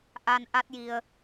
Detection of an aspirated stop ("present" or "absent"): absent